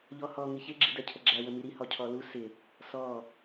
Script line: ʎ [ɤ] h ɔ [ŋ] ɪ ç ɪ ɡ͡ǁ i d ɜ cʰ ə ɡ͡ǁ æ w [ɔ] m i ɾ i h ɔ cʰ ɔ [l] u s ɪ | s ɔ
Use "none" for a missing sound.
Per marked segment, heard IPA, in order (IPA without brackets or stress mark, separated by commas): ɔ, ŋ, ə, l